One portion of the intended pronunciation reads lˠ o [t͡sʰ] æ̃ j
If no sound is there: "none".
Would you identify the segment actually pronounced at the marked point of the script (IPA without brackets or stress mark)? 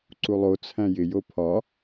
t͡sʰ